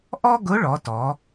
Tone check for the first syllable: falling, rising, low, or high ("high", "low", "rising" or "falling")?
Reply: high